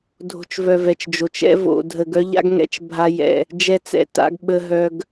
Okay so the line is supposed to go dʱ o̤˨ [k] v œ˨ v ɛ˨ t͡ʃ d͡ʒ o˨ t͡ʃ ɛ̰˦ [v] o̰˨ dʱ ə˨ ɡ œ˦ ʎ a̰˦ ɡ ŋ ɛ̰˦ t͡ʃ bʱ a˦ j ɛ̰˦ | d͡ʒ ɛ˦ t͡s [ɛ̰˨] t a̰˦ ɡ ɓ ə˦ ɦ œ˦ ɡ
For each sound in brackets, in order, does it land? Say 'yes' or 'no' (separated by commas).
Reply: no, yes, no